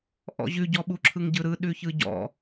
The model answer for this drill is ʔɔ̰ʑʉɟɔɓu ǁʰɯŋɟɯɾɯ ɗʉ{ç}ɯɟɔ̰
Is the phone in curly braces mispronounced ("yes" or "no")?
no